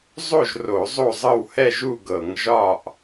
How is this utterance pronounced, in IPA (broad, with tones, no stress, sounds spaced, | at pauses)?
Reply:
zˤ o˥˨ ʒ r o˧˩˧ zˤ o˥˨ zˤ ɤ˥˨ w h ɛ˥˨ ʒ u˥˨ ɡ ɤ˧˩˧ ŋ ʒ ɒ˥˨ ʔ